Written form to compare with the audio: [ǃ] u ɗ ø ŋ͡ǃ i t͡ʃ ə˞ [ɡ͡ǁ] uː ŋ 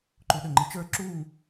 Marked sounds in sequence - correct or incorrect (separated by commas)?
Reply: correct, incorrect